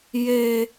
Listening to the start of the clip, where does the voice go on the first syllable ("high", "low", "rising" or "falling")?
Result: high